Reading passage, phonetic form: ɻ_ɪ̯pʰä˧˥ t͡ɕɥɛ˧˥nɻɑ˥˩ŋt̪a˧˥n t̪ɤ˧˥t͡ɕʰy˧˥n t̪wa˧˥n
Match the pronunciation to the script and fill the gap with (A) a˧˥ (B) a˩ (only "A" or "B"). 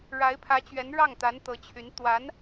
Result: A